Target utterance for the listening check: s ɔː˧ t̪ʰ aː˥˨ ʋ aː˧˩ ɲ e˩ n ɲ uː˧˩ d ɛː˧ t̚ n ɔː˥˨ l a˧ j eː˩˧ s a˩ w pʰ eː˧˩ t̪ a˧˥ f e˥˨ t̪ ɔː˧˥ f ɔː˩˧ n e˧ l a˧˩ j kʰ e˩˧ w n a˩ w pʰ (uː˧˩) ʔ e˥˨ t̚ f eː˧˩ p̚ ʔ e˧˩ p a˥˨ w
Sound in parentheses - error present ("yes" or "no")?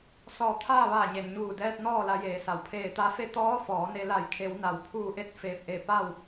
no